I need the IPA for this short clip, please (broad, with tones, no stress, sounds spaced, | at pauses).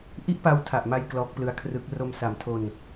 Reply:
ʔ i˥˩ ʔ p a˦˥ w tʰ a˨˩ ʔ m a˧ j k l ɔː˦˥ k̚ p l ɯ˦˥ a̯ kʰ r ɯ˦˥ k̚ r o˧ m s a˨˩ m tʰ o˧ n